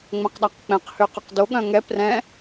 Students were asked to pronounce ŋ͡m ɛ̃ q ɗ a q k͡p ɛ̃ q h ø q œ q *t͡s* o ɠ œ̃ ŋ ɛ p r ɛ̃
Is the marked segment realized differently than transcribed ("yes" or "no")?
yes